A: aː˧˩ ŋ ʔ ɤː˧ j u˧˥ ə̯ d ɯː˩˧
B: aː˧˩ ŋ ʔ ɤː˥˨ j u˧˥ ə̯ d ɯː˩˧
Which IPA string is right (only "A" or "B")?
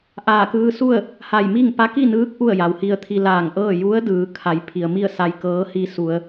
B